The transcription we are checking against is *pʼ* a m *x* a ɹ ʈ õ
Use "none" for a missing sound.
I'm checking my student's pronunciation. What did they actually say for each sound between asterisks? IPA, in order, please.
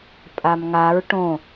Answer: pʼ, ŋ

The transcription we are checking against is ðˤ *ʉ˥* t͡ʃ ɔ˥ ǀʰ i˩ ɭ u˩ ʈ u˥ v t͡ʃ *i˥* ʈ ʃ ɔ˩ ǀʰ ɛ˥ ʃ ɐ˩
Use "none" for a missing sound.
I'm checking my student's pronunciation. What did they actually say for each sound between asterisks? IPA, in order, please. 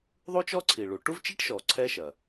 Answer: u˥, i˥

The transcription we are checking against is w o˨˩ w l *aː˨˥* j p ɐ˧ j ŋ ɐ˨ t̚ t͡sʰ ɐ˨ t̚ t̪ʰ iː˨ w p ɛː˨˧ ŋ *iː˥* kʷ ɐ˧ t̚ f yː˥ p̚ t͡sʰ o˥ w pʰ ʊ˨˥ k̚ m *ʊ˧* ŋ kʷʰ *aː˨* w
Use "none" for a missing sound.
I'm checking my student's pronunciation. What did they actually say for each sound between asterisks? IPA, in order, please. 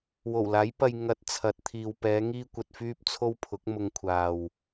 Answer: aː˨˥, iː˥, ʊ˧, aː˨

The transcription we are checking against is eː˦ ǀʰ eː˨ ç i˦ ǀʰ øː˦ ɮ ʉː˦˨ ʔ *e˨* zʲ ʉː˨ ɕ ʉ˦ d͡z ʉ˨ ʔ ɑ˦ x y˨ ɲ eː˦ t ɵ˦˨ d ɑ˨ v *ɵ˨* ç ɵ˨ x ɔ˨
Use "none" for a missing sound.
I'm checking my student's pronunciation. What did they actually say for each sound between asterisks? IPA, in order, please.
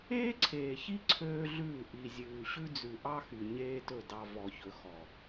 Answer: i˨, ɔ˨

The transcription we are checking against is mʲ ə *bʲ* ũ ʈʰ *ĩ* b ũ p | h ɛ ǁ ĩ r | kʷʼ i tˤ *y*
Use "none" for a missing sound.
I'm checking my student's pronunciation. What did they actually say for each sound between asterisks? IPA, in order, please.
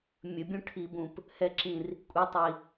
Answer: bʲ, i, i

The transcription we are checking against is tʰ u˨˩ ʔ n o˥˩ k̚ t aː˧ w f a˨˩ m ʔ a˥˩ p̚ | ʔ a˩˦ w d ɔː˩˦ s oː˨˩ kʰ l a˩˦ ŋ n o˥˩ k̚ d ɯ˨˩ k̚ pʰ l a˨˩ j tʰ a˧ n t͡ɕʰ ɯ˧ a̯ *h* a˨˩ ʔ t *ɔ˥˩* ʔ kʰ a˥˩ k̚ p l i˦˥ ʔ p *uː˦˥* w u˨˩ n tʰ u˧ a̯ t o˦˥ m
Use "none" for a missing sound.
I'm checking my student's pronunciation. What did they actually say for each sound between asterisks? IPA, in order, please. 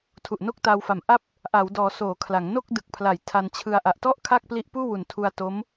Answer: ʔ, ɔ˥˩, uː˥˩

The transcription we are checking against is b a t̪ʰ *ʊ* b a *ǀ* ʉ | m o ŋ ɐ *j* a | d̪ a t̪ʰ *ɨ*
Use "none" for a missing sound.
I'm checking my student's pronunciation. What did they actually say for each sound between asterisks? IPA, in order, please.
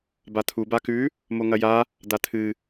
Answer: u, k, j, ɨ

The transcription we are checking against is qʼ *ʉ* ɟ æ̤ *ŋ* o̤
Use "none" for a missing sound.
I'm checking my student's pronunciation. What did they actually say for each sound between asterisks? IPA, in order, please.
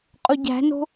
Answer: u, n

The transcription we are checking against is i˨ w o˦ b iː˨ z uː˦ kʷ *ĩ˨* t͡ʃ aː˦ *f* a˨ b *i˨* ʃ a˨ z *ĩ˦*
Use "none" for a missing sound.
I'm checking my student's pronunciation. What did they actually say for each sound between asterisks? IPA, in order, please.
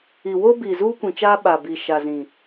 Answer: ĩ˨, ɓ, i˨, ĩ˨

